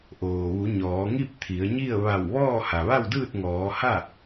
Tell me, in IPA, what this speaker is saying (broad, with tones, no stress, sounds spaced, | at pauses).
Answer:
ʔ oː˩ ʋ u˩˧ ɲ ɔː˩˧ ŋ i˥˨ p̚ t̪ʰ i˩˧ ə̯ ɲ i˥˨ ə̯ ʋ a˧˩ w ʋ ɔː˥˨ h a˩ ʋ a˥˨ w d ɯː˥˨ t̚ ŋ ɔː˩˧ h a˥˨